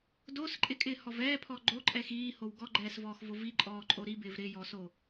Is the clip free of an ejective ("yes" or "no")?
no